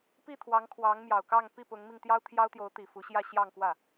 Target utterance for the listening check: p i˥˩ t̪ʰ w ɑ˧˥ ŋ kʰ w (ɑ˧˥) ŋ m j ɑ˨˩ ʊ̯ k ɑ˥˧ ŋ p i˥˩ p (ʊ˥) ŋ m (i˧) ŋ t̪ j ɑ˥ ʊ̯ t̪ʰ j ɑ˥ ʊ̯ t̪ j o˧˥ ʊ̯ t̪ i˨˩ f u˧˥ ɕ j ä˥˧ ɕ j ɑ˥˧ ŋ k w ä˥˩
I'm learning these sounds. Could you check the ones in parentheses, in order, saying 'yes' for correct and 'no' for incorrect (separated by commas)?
yes, no, yes